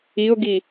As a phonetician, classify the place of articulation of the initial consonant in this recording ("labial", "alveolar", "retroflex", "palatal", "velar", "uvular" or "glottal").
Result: velar